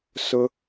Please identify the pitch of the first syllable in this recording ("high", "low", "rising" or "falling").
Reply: high